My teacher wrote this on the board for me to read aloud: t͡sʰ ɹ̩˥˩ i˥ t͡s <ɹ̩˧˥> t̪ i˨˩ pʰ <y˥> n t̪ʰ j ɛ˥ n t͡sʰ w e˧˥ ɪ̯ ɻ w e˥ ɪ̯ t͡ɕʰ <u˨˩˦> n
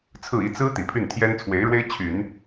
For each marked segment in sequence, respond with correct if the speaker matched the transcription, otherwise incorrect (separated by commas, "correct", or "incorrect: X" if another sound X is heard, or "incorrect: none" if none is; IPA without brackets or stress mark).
incorrect: ɹ̩˥, incorrect: y˥˩, incorrect: y˨˩˦